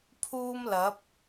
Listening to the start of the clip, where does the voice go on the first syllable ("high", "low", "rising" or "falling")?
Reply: high